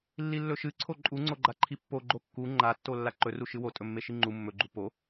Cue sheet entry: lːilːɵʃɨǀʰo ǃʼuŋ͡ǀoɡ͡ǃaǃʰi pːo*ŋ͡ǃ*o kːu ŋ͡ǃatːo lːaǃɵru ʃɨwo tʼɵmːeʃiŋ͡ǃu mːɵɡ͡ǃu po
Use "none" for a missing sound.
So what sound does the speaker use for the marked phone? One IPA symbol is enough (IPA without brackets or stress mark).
ɡ͡ǃ